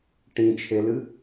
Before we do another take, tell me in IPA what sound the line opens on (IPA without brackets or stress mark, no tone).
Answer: ʈ